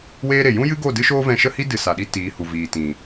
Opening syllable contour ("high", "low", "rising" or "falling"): high